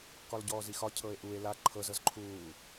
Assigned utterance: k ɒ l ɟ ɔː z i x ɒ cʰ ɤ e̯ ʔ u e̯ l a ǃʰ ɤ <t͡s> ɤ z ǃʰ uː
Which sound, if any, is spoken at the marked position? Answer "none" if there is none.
z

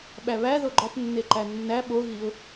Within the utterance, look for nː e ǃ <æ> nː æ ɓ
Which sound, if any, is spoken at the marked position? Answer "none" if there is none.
æ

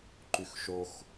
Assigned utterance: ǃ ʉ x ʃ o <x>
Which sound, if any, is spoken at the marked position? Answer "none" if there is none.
x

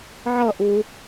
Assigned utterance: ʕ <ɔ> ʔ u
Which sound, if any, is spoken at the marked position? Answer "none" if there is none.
ʌ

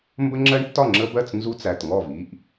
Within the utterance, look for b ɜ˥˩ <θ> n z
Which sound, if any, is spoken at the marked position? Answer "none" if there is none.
t͡s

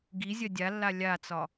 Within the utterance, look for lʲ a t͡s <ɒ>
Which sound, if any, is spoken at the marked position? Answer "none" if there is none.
ɒ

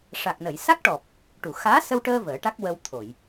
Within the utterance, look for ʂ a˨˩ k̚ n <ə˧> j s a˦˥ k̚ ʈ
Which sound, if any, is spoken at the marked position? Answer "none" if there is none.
ə˨˩˨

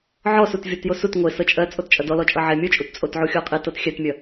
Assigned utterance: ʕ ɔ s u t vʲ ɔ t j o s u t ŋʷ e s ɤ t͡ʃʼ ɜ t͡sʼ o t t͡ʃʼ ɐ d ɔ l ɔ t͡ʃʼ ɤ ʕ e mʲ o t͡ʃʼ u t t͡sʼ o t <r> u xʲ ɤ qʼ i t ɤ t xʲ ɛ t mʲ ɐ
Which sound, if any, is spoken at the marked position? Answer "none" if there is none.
ʕ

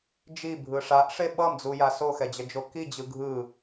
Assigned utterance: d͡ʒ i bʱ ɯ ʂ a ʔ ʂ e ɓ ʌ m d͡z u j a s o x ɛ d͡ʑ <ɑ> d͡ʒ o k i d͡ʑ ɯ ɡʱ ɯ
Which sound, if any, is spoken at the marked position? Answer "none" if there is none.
ʌ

